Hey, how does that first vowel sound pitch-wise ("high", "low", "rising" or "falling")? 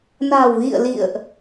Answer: low